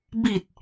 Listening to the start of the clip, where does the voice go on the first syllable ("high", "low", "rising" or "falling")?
low